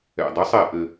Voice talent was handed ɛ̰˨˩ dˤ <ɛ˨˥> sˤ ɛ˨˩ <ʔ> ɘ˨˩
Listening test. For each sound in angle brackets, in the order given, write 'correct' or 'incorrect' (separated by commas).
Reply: correct, correct